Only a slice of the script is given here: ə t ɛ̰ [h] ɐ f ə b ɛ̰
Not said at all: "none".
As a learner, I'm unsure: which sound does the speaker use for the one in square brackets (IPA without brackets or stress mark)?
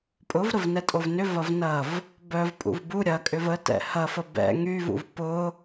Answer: h